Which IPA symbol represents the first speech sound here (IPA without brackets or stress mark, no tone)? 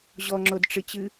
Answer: ʑ